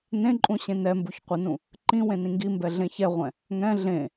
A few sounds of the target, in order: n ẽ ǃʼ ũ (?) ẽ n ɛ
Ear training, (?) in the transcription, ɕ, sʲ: ɕ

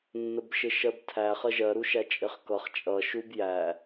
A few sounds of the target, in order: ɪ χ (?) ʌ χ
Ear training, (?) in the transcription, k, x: k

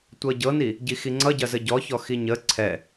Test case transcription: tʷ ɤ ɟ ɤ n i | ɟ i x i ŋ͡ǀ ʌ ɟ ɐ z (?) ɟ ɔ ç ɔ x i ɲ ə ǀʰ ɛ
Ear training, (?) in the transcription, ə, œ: ə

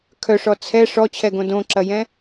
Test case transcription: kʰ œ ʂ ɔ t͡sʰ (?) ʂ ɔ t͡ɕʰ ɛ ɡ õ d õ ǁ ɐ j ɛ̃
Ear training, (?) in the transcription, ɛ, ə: ɛ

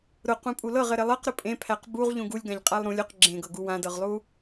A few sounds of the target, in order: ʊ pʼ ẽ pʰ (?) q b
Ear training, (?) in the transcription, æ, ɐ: æ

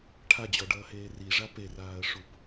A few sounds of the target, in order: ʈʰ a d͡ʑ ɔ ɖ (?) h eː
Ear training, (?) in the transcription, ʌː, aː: ʌː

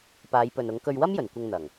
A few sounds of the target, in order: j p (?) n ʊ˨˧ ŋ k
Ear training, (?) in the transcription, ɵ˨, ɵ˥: ɵ˨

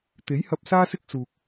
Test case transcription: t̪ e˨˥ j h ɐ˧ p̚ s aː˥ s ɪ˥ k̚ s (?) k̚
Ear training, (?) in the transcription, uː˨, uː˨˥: uː˨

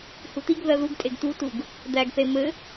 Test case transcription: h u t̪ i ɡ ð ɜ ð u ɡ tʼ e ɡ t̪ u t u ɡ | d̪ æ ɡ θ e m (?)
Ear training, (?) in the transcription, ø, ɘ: ɘ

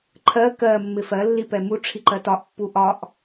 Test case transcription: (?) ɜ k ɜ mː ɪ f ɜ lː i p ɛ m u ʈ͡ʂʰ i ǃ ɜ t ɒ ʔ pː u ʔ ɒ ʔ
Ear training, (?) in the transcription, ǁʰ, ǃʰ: ǃʰ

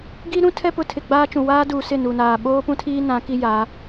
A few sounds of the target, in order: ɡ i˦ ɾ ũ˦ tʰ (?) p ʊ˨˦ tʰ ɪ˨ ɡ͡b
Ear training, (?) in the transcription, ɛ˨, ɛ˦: ɛ˦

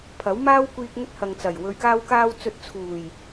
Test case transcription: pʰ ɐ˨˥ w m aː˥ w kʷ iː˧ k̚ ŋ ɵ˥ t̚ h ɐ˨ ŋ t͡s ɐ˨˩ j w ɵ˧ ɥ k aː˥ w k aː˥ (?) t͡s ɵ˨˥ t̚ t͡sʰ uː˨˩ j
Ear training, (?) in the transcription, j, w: w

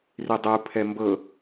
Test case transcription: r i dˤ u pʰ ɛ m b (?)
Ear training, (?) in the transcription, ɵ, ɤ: ɤ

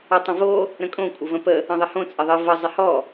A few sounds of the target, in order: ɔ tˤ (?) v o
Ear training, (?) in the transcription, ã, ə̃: ə̃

